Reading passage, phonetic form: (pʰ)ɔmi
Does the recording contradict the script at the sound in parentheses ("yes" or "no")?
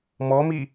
yes